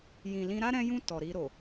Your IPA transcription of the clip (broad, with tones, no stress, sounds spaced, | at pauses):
j ĩ˨ l ĩ˧ ɾ a˦ ɾ ɛ̃˧ j ũ˧ t ɔ˨ ɾ i˧ ɾ o˨